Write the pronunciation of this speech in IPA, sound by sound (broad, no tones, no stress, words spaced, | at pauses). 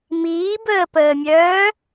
miːbəːpəːmʲœː